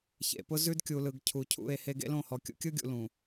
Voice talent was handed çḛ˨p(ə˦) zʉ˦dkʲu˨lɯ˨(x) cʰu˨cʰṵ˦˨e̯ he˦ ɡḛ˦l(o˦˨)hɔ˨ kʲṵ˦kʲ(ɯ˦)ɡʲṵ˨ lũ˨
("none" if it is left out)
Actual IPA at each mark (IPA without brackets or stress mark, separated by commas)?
ʊ˦, ɡ, õ˦˨, ɯ˦